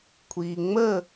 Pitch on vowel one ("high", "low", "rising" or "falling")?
low